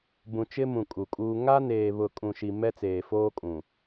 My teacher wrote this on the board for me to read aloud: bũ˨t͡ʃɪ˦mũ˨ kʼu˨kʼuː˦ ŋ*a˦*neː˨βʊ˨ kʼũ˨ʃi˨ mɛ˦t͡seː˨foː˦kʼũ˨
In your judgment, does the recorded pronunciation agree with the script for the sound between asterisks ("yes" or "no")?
yes